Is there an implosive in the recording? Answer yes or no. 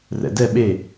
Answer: yes